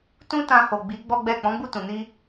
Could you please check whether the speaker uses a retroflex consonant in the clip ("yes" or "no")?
no